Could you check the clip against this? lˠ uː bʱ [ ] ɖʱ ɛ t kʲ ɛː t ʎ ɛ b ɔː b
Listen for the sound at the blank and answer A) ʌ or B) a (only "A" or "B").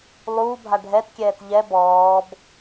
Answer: B